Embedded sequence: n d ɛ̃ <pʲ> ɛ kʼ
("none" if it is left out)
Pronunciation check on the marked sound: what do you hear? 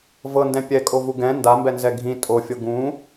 pʲ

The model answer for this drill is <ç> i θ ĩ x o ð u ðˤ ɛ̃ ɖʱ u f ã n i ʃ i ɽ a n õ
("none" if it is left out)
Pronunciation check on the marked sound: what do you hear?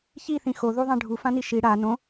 ç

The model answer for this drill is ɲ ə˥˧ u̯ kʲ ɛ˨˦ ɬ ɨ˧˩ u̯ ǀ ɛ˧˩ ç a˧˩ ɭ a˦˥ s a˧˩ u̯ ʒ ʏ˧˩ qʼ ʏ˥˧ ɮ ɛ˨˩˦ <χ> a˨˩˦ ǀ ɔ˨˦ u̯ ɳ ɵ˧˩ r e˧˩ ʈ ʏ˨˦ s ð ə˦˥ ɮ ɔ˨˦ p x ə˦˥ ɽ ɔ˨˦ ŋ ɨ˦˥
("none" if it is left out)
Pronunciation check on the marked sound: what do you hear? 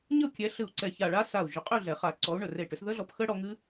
χ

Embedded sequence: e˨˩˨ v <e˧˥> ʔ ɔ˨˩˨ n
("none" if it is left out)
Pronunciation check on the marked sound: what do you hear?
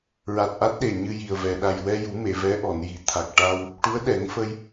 ɛ˧˥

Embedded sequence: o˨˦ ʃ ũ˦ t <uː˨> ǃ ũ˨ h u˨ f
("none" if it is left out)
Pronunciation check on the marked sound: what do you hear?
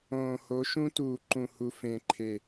uː˨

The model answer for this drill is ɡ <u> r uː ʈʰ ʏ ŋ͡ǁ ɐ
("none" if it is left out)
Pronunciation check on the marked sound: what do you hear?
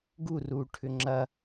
u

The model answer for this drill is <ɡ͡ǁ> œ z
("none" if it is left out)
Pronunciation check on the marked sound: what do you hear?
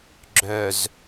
ɡ͡ǁ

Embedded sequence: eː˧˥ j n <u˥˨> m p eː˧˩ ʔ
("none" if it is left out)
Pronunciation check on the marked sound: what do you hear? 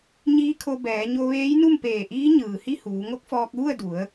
u˥˨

